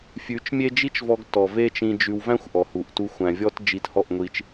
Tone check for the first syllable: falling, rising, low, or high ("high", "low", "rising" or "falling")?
rising